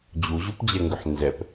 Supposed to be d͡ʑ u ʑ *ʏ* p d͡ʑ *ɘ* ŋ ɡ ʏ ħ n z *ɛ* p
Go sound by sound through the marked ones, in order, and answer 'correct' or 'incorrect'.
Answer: incorrect: u, incorrect: ɛ, correct

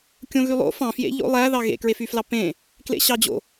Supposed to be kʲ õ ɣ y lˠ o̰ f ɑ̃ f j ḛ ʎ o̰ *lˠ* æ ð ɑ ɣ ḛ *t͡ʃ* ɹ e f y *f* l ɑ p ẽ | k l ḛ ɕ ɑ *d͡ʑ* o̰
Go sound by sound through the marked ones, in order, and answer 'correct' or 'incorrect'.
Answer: correct, incorrect: k, correct, correct

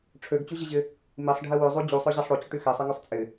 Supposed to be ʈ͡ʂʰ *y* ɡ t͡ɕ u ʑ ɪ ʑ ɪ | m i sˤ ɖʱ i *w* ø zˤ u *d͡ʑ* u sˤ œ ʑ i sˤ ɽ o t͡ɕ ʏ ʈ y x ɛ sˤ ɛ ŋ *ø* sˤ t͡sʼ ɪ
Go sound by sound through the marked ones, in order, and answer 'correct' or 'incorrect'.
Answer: incorrect: ø, correct, correct, correct

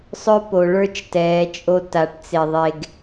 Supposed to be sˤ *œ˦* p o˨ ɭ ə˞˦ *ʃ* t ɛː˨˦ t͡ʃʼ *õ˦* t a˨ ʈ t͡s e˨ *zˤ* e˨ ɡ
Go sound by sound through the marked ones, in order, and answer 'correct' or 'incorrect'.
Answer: correct, incorrect: t͡ʃ, incorrect: o˦, incorrect: ðˤ

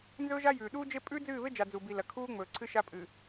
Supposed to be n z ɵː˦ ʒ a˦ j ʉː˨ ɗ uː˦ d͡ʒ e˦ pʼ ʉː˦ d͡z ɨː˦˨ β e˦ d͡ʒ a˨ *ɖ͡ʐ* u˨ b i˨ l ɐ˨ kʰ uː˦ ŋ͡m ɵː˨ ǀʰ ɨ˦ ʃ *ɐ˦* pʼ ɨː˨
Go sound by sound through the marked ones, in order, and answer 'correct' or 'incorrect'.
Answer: incorrect: d͡z, incorrect: a˦

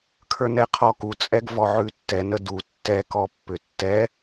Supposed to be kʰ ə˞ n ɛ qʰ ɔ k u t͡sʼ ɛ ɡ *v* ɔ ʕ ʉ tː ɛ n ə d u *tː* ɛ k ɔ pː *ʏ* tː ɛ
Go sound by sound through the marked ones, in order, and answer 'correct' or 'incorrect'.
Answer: correct, correct, correct

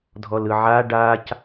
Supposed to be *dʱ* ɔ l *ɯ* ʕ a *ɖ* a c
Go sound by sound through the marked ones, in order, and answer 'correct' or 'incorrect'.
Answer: correct, correct, correct

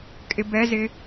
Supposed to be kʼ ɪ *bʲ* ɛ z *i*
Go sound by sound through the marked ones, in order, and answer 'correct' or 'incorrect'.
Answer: incorrect: b, incorrect: ɪ

